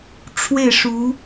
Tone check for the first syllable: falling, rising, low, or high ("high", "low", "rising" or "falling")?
falling